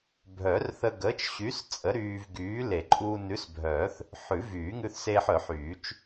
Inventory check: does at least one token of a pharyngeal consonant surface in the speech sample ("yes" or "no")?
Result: yes